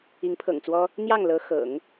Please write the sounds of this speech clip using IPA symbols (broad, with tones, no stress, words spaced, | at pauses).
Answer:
i˧˥ŋpʰɤ̰˨˩ŋt͡swɔ˥ | n̪jɑ˥˩ŋlɤ˧˥ xɤ̰˨˩˦ŋ